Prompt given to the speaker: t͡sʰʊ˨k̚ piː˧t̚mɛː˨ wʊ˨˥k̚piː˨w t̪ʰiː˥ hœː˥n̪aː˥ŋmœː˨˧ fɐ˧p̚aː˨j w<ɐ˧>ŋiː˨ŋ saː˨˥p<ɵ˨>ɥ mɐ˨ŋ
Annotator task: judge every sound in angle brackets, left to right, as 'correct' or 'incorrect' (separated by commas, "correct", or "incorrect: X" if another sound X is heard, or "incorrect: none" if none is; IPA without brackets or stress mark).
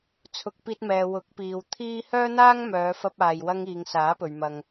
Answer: correct, correct